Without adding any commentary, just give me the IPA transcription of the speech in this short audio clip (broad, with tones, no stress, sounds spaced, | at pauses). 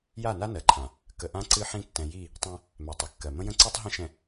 j a˦˨ n a˦ n ɜ˨ ǃʰ ã˨ | k ə˨ ʔ ã˦ ǀ ɨ˦ ħ ĩ˦ tː ɛ̃˨ j i˦˨ | tˤ ɛ̃˦ | m ɛ˨ tˤ ə˨ kː ɜ˨ m ə̃˦ j ə̃˦ ǀ i˦ tˤ ɦ ə̃˦ ʃ ɛ̃˨